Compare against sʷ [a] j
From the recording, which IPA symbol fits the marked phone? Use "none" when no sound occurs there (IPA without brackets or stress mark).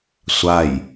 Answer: a